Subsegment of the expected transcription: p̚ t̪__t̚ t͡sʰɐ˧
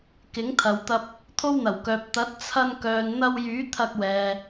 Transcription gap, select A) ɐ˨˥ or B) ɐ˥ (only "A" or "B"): A